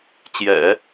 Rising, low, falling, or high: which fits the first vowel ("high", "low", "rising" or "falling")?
low